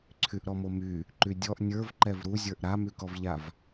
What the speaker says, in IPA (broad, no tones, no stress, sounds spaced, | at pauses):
ǀʰ y ʔ ɾ ɔ m o m y | ǃ y dʲ ɔ ʔ nʲ ə˞ v ǃ ɛ v ɾ u zʲ ə˞ ʔ ɾ a m y k ɔ v ʎ a v